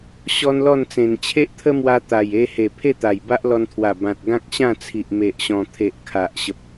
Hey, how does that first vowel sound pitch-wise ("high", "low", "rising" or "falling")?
high